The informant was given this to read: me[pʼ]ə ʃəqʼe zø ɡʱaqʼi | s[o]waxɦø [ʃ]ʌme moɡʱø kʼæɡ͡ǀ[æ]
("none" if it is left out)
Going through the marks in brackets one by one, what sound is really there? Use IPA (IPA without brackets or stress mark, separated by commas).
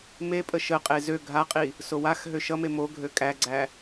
pʼ, o, ʃ, æ